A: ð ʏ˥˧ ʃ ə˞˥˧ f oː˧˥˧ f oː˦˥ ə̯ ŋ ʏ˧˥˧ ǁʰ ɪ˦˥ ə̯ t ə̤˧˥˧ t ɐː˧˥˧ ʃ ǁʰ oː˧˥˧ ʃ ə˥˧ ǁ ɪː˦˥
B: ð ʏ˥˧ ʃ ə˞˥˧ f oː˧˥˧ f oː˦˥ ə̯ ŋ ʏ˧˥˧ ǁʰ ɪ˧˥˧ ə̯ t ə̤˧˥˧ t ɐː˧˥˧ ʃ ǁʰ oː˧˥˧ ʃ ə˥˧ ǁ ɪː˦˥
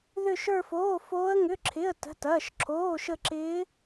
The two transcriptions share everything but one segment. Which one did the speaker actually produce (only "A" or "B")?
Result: B